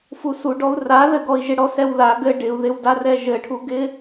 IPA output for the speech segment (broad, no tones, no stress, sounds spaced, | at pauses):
f u s u ɖ ɔ u̯ r a ð ɘ ɡ ɔ i̯ ʒ ɪ ɽ ɔ s ɛ w ð a ɡ ɘ ɖ ɪ u̯ ð ɪ w d a r ɛ ʒ ɘ ʈʰ u ɡ ɪ